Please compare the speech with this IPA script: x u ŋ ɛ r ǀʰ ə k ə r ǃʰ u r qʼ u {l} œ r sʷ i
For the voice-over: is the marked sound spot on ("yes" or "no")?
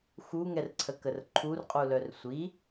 yes